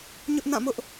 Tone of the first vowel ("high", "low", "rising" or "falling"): high